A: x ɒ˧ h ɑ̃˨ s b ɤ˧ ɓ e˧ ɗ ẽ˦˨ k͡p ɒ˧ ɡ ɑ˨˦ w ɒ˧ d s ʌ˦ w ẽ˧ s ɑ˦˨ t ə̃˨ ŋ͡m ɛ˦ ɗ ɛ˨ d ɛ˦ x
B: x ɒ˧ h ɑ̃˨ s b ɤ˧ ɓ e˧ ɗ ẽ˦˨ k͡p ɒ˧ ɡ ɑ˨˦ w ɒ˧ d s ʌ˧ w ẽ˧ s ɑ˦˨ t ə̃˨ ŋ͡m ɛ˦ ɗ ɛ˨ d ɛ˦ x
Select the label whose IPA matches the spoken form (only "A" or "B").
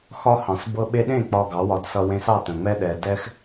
B